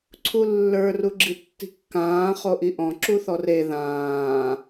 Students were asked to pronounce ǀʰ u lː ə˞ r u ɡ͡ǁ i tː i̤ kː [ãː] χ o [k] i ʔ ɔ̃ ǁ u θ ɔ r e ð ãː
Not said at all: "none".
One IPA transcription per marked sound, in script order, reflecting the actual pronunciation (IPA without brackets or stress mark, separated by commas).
ãː, ʔ